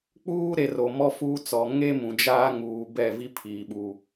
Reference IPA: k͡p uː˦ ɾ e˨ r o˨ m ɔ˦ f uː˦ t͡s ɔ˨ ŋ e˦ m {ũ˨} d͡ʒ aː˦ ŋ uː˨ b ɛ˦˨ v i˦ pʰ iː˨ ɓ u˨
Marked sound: correct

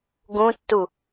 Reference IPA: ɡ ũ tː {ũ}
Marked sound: incorrect: u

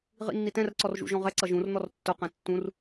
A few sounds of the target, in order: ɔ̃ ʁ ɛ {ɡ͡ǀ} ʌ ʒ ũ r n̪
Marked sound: incorrect: ǀ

